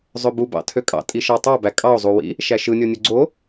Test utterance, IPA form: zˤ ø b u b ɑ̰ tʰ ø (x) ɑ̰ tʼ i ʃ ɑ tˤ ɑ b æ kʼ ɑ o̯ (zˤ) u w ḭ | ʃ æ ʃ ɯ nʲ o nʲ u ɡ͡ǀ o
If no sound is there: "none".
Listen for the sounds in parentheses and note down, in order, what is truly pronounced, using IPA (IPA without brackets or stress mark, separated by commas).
kʼ, zˤ